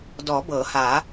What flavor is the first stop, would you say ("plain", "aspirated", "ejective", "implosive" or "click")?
plain